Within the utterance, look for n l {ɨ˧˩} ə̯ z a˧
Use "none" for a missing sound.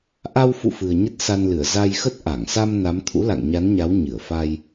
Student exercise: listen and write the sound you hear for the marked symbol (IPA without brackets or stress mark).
ɨ˧˩